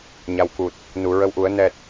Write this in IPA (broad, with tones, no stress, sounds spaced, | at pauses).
ɲ a˨˩ w k u˨˩ t̚ | n u˨˩˨ ɹ ə˧˥ w ʔ u˨˩˦ ə̯ n ɛ˨˩ t̚